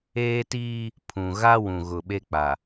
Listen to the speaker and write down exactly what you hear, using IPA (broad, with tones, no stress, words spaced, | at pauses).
eː˦tiː˦ | pʰũ˨ɣa˦ wũ˨ɣʊ˨ɓe˦k͡pa˨